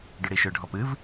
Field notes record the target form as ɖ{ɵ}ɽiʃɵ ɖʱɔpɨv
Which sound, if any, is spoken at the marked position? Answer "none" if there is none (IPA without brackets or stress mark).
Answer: ʊ